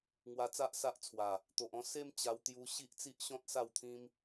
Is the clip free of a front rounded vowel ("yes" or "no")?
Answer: yes